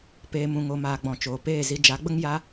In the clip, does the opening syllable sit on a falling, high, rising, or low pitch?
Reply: low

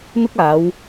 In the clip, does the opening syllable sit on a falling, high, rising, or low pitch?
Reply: high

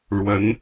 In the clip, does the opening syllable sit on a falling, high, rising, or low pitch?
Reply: rising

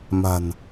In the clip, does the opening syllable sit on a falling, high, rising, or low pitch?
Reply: low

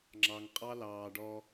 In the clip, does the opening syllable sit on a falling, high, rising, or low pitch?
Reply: low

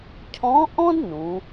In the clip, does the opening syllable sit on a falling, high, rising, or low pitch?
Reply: rising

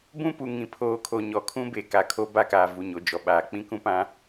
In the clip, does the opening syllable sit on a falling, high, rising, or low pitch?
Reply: high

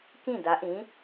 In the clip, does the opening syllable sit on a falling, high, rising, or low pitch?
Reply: falling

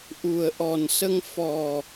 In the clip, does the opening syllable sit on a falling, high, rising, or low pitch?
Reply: low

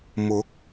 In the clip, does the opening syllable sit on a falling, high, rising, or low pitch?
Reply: rising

